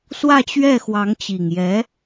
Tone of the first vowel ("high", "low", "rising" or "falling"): falling